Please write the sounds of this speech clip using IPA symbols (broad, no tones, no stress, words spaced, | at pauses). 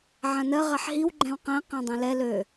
ʕãnɜ ʁaħɦiw ɡ͡ǃɛ̃wqæ̃ qæ̃dˤɛ̃lɛ lø